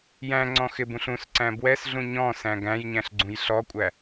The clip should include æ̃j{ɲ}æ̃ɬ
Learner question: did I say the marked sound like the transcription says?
yes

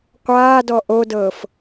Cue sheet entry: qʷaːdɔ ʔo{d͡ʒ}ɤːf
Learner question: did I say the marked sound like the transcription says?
no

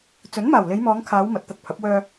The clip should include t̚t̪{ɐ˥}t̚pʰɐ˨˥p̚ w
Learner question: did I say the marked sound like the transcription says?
no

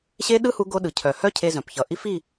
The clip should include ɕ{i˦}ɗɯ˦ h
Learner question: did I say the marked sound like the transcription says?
no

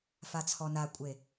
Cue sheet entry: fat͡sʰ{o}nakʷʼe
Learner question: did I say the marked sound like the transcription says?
no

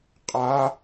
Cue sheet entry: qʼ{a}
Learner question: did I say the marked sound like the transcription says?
yes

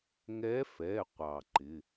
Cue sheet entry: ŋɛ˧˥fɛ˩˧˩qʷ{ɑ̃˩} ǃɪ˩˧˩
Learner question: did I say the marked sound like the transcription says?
no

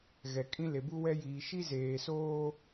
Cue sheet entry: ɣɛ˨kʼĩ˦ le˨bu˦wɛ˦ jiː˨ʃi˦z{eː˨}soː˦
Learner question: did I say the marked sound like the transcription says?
yes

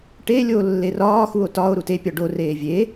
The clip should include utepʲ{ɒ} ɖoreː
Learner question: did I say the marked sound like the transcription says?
yes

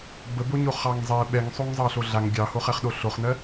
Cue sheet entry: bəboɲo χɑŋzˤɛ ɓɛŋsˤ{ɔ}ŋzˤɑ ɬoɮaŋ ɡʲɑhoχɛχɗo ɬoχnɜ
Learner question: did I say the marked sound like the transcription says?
no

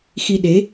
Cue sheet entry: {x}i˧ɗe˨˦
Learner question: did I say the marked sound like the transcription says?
yes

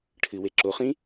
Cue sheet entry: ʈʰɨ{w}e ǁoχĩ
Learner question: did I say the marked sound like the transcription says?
yes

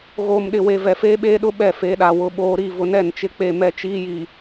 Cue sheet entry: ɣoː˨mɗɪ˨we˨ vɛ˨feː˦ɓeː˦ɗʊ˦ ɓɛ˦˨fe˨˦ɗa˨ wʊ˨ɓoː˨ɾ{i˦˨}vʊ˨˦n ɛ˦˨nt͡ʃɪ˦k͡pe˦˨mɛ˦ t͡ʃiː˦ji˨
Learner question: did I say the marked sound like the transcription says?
yes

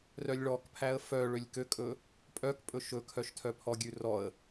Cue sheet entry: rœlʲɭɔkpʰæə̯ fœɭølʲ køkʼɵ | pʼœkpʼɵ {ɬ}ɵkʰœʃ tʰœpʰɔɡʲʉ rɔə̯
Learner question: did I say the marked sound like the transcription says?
no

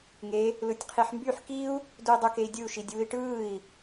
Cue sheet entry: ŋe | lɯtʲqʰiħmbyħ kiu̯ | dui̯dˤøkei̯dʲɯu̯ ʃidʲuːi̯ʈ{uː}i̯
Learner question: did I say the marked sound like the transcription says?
no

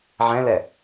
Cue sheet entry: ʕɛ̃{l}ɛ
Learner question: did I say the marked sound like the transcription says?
yes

